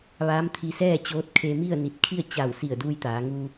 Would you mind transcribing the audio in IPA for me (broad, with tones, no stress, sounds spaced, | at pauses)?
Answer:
ʋ aː˧˥ m t̪ʰ i˧ s ɛː˥˨ t͡ɕ oː˧˥ t̚ kʰ e˧ m i˥˨ ə̯ n i˧˩ t̚ kʰ i˥˨ ə̯ t͡ɕ a˧˩ w s i˧˩ ə̯ d uː˧ j t̪ aː˩˧ ŋ u˧